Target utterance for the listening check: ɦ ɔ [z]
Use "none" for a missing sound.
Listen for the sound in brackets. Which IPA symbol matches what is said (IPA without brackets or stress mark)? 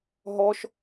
ʃ